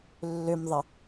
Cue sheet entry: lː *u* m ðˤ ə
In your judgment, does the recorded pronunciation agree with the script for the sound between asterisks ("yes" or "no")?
no